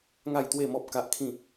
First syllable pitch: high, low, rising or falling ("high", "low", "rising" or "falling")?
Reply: falling